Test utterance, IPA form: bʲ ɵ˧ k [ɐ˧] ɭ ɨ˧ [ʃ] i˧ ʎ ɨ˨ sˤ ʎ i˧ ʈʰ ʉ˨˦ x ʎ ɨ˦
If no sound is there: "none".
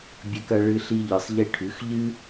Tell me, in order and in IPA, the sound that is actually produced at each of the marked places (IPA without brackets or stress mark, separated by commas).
ɐ˧, ɬ